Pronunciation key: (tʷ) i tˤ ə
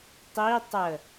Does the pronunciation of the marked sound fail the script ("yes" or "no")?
yes